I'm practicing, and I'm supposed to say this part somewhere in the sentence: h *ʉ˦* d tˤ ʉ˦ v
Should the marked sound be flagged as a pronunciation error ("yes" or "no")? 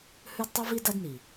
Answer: no